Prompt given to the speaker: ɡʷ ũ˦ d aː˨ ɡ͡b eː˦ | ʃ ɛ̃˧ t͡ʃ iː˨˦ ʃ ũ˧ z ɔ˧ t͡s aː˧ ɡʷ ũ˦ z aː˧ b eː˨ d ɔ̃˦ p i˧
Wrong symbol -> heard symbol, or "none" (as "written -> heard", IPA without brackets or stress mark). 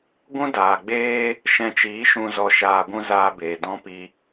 t͡s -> ʃ